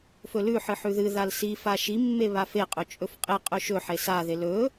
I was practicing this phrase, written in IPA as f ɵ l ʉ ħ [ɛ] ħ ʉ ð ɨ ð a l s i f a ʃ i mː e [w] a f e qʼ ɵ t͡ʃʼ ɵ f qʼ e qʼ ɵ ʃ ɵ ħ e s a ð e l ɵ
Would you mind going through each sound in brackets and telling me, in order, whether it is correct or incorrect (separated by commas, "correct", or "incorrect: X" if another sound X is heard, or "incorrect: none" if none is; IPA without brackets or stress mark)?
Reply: incorrect: ɨ, incorrect: β